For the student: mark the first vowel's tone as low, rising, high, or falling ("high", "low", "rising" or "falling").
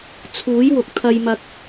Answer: rising